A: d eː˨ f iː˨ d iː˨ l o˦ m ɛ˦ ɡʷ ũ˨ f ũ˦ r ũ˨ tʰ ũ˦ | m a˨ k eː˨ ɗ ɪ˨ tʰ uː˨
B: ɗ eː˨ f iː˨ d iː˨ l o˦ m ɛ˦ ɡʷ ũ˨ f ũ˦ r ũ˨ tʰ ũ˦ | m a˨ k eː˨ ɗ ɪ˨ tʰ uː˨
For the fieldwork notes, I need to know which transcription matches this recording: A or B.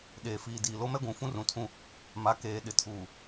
B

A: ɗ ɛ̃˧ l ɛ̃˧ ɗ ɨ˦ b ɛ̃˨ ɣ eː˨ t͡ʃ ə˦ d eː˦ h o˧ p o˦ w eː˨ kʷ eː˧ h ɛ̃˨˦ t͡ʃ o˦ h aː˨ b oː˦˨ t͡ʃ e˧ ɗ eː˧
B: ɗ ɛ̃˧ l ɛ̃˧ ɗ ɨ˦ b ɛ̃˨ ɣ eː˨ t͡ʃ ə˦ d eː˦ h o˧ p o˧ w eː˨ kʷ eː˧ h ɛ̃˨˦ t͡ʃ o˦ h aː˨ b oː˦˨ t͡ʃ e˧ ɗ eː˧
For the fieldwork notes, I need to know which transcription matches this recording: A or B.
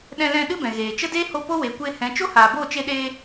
A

